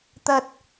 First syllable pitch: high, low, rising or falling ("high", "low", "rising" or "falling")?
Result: high